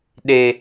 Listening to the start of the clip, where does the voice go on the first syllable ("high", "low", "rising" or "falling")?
high